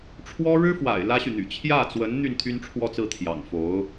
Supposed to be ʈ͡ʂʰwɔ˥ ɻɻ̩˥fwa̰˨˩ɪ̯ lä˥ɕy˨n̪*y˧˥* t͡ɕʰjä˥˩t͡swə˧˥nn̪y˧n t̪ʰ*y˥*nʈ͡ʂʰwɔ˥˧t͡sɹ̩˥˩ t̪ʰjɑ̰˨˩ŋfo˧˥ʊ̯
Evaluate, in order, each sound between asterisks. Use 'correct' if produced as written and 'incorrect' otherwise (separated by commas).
incorrect, correct